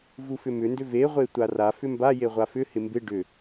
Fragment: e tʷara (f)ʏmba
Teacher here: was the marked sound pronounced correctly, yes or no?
yes